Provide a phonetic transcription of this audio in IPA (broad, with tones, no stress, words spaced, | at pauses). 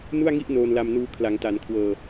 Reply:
nu˥˩a̯ŋi˥˩ʔ noː˧nla˧mnuː˧ kʰla˩˦ŋta˩˦n kʰwɤː˧